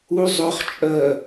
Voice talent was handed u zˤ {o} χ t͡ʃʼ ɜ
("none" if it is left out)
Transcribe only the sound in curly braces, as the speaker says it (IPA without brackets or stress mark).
ɵ